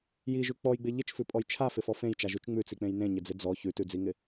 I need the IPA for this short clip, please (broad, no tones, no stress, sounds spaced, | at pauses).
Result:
j i ʒ ʉ k͡p ɔ j ɡ͡b ɪ ʎ ɪ t͡ʃ f ʉ pʼ ɔ j t͡ʃʰ a f ɪ f ɔ f ẽ j t͡ʃ a ʒ ʉ t͡ʃ ŋ͡m ʉ t͡s i k͡p ẽ j n ẽ ɲ ɪ d͡z ɪ d͡z ɔ ç ʉ t ʉ d͡z i ŋ ɪ